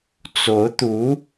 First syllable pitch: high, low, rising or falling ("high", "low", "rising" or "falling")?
rising